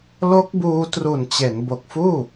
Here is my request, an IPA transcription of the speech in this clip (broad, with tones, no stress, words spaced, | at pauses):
lo˦˥k̚buː˧ tru˨˩nt͡ɕe˩˦n bo˨˩k̚fuː˥˩